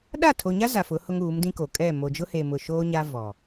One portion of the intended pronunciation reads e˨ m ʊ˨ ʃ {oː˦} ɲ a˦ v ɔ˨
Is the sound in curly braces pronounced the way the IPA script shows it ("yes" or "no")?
yes